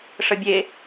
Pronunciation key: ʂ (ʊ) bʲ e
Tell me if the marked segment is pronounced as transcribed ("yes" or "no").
no